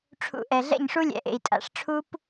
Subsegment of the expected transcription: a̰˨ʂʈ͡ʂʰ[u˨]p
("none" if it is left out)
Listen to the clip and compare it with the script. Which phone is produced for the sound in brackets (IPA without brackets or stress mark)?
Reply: u˦